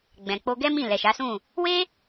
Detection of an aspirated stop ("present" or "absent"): absent